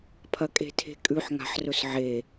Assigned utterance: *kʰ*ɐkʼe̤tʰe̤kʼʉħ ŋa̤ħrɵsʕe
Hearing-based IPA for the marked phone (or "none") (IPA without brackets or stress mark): pʰ